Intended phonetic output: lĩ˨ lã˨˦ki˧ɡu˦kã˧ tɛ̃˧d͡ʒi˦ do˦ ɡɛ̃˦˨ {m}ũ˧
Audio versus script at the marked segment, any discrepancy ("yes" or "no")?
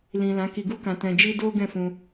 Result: yes